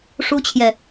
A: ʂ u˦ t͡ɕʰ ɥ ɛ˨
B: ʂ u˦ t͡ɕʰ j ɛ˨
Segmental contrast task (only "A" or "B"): B